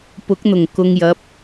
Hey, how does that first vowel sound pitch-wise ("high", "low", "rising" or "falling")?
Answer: rising